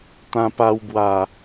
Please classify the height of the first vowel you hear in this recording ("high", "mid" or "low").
low